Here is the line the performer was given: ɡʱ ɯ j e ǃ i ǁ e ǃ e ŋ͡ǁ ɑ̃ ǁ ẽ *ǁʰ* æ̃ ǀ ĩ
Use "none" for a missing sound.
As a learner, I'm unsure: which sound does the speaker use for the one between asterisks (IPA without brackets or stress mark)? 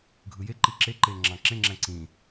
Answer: ŋ͡ǁ